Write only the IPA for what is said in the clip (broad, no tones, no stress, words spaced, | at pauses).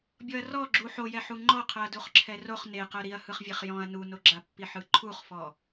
bʲɔɐ̯rɔ ɡ͡ǁu ħojɛ ħuŋ͡ǃɔqʰɤɐ̯ duχǁʰɛroχ neqɤ ɾiɐ̯hɯχvʲeχ jɔ̃ɐ̯ nunoɡ͡ǁapːi ħɯǃʰuχfɔ